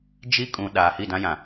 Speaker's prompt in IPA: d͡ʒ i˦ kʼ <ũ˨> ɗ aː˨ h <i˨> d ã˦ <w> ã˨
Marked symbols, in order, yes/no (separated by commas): yes, no, no